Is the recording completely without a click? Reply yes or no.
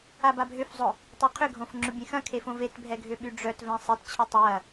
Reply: no